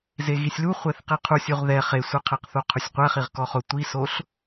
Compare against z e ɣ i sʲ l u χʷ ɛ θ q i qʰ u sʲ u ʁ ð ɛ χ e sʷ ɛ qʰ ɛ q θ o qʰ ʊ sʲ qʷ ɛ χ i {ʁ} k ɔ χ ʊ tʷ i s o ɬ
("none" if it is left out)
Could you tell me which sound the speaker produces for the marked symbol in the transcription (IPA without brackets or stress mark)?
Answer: ʁ